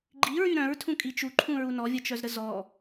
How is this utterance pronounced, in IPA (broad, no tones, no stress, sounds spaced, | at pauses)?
ɡ͡ǃ i ɹ y ɾ œ̃ ɹ tʰ ũ kʼ i t͡ʃ u ǃʰ ũ ɹ u n ɔ vʲ ə t͡ʃ œ z ɾ ə z ɔ